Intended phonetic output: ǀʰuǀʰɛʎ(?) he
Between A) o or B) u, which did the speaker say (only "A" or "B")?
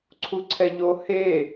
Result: A